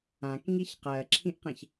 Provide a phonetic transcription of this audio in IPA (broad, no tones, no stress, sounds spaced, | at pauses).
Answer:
ã k ŋ i ç q ɜ ǁʰ ĩ ʔ q ẽ ç